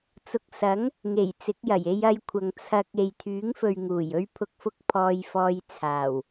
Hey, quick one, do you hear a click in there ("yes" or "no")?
no